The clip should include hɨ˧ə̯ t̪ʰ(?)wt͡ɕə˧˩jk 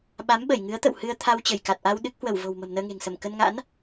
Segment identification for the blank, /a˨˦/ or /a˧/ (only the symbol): a˧